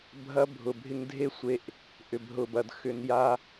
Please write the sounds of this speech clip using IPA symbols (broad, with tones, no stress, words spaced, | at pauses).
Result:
bʱɐ˦bʱʊ˨bʱɪ˦ŋ dʱe˦ sʷe˦ʔ | ʔʏ˨bɦʊ˨bɐ˨d xʏ˨nja˦